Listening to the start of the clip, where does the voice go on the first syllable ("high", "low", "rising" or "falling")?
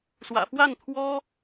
low